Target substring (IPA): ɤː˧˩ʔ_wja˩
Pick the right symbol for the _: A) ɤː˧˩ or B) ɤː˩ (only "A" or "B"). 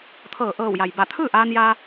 A